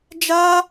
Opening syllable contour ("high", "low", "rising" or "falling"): high